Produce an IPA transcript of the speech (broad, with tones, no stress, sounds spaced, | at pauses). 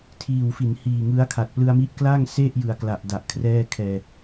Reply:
tʰ iː˨˩ w f i˩˦ n h iː˨˩ ŋ ɯ˦˥ a̯ kʰ a˨˩ t̚ p l ɯ˧ a̯ m i˦˥ ʔ k l a˥˩ ŋ s e˥˩ ʔ j ɯ˨˩ a̯ k l a˨˩ ʔ d a˨˩ ʔ kʰ r ɛː˥˩ kʰ ɛː˧